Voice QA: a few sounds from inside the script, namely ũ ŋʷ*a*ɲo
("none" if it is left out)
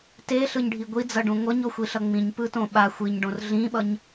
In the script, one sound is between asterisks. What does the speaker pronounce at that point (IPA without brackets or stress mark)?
ʌ